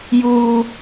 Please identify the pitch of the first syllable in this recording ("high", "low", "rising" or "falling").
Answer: high